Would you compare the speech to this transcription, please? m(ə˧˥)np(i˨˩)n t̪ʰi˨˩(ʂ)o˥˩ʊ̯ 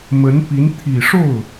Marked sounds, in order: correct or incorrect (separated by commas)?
correct, incorrect, correct